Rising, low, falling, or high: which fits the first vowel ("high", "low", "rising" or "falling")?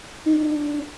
low